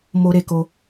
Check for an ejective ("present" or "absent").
absent